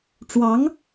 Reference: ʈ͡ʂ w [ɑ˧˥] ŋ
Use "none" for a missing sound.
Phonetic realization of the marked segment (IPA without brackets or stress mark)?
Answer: ɑ˧˥